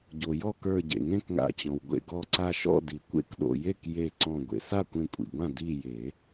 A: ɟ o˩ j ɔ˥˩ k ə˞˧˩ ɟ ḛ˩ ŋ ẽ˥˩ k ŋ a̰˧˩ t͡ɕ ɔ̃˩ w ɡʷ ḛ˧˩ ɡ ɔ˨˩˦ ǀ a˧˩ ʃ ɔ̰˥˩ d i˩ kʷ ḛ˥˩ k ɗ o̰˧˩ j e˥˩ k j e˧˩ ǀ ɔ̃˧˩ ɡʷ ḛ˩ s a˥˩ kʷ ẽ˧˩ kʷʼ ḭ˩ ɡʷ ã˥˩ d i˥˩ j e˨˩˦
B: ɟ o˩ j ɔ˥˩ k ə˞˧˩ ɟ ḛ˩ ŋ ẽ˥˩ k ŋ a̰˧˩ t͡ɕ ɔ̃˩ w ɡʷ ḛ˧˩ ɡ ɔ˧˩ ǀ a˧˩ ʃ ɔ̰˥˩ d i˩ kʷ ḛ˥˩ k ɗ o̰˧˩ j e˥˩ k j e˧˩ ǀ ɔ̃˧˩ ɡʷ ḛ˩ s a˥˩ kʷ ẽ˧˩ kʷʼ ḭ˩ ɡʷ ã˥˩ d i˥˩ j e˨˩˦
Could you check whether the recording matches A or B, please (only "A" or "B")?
B